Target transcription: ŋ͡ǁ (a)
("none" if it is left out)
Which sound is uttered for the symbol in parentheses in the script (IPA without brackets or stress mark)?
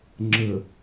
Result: ə